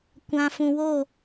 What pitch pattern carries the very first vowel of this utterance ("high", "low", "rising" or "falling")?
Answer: low